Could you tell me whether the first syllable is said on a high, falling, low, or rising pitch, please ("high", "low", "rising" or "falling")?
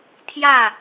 falling